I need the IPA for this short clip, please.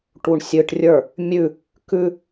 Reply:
ʈ u ɳ sʲ ɨ ʈ rʲ ə˞ | mʲ ʉ | k ʉ

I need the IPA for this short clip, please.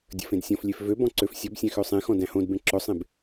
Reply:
dʲ ə̰ f ẽ d sʲ ɔ̃ f lʲ e f v ø b ɔ̃ ǀ ø f sʲ ɔ b sʲ æ̃ x ø sˤ ẽ x ɔ̃ d æ̃ h õ d b ẽ ǁ ɵ sˤ ẽ b

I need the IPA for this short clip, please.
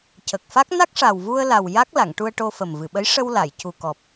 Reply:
c ə˨˩ k̚ f a˦˥ k̚ n a˦˥ k̚ ʂ a˨˩ w v u˧ ə̯ l a˨˩ w j a˦˥ k̚ l a˨˩˨ ŋ ʈ u˧ ə̯ ʈ o˧ f ə˨˩ m v ɨ˨˩˨ ɓ ə˧˥ j ʂ ə˧ w l a˨˩˨ j c u˨˩ k ɔ˨˩ p̚

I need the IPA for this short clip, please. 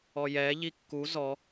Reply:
ɔ j ɛː ʎ i kː u z ɔ

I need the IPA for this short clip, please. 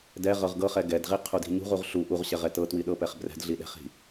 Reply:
d ɛ ʁ ɤ ʁ ɡ ɤ χ ɛ ɡ ɛ d ʁ i qʰ u d i̤ ɲ ṳ ʁ u ʁ ɬ u ʔ u ʁ ɕ ɛ ʁ ɛ t ɤ t w i ɗ ɤ p ɛ χ b r ɛ̤ d ɮ i ɗ ɛ̤ χ i̤

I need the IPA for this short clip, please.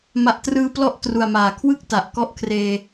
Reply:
m a˨˩ ʔ t r ɯː˧ p l ɔ˥˩ ʔ t r u˨˩ a̯ m aː˩˦ kʰ w ɯ˥˩ k̚ t a˨˩ ʔ k ɔ˦˥ ʔ kʰ r eː˧

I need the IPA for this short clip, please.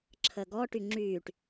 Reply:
ǁʰ ə ɡ ɔ ʈ y ŋ͡ǁ yː ʈ

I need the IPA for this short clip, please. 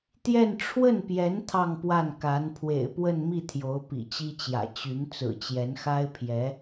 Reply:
t̪ j ɛ˥˧ n ʈ͡ʂʰ w ə˥˩ n p j ɛ˧˥ n t̪ʰ ɑ˥˧ ŋ p w a˥˩ n k a˧˥ n pʰ w ḛ˨˩ ɪ̯ p w ə˥˧ n m i˥˩ t̪ʰ j o˧˥ ʊ̯ p ḭ˨˩ t͡ɕ i˥ t͡ɕ j ä̰˨˩ t͡ɕ y˧˥ n t͡s ɹ̩˨˩ t͡ɕ j ɛ˧˥ n x a˥ ɪ̯ pʰ j ɛ˧˥

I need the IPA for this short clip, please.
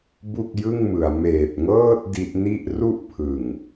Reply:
b u˥˩ k̚ j ɯ˥˩ ŋ m ɯ˩˦ a̯ m eː˨˩ p̚ ŋ ɤː˥˩ t̚ d i˦˥ ʔ n i˥˩ ʔ r u˥˩ ʔ pʰ ɯ˨˩ ŋ

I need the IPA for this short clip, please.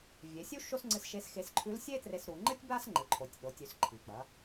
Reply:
vʲ e˩˧ sʲ u˥ ʃ o˥ s ŋ͡ǀ ɨ˧˥ s ʃ e˧˥ s x e˧ s ǃʰ ʉ˧˥ l sʲ e˥ t r e˧ s ɾ u˩˧ ŋ͡ǃ ɨ˥ tʲ b a˥ s ŋ͡ǃ ɨ˩˧ ǃʰ o˩˧ tʲ ɗ o˩˧ tʲ ʉ˩˧ s ǃʰ i˩ k͡p ɐ˩˧

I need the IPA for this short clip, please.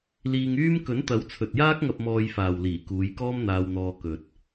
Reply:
l iː˧ ŋ yː˥ m k ɵ˨˥ n t̪ ɐ˨˥ w t͡sʰ ɵ˨ t̚ j aː˥ k̚ ŋ ɐ˧ p̚ m ɔː˧ j f aː˨ w l iː˨˩ k uː˨˧ j k ɔː˥ m n̪ aː˧ w n̪ ɔː˧ k ɵ˨ t̚

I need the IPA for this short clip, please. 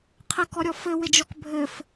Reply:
qʰ ɛ k ɔ ɾʲ ɔ f ɘ w ɪ d͡ʒ ɔ k bʱ ɘ f

